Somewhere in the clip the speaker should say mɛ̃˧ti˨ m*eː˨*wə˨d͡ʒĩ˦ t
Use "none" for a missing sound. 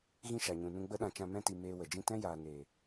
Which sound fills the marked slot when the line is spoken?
eː˧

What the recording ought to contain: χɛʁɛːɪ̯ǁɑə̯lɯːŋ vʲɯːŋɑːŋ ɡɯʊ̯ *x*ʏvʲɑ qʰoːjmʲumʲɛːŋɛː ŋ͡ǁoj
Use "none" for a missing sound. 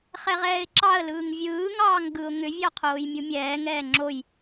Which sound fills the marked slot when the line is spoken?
ŋ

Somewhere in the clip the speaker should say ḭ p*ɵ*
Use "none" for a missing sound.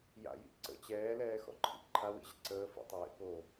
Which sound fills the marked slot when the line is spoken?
o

